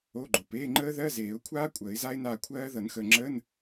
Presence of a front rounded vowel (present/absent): absent